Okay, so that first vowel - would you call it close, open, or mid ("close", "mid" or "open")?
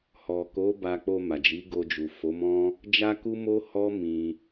mid